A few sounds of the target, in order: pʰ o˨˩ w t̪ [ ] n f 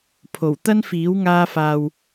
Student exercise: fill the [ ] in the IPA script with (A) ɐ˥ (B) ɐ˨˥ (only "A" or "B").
A